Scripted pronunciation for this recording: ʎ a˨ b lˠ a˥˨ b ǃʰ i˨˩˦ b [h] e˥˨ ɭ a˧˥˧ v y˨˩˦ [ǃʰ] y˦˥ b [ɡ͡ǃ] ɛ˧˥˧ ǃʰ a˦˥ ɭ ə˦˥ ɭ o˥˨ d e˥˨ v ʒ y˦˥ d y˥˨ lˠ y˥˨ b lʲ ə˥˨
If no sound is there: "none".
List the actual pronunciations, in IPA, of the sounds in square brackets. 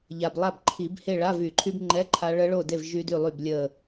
h, ǃʰ, ŋ͡ǃ

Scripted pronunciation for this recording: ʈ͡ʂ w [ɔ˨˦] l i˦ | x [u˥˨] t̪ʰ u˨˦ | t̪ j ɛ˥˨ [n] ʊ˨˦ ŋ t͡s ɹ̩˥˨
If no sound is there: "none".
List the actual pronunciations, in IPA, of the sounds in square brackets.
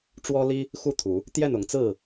ɔ˦, u˥˨, n

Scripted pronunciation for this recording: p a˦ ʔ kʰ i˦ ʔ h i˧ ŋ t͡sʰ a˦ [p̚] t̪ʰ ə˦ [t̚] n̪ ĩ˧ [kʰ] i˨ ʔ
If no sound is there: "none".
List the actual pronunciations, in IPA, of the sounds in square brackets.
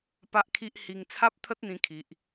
p̚, t̚, kʰ

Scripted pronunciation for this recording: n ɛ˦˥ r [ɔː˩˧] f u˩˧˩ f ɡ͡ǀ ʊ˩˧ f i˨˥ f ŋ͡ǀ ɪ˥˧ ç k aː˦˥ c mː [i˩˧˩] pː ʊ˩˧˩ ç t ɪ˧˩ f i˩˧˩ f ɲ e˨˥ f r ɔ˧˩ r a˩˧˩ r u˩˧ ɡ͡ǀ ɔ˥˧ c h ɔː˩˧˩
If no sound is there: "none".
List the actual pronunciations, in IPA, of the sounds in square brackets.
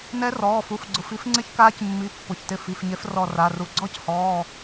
ɔː˩˧˩, i˩˧˩

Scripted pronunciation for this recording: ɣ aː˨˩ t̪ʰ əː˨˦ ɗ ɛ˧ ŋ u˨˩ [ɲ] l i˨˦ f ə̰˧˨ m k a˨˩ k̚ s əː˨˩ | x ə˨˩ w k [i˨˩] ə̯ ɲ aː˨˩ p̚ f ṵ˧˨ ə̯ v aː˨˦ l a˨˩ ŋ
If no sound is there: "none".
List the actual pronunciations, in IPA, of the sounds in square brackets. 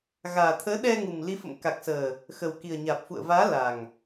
m, i˨˩

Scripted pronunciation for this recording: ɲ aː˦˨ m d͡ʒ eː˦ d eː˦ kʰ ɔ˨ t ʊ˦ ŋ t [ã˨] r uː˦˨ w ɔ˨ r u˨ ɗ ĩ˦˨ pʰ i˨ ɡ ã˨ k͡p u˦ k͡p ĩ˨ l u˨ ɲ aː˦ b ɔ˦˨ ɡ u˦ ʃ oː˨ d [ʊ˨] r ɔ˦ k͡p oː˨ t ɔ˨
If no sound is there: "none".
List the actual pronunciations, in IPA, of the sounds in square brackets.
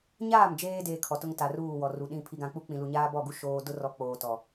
a˨, ʊ˦

